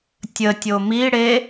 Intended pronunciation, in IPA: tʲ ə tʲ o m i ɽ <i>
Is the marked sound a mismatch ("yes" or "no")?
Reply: yes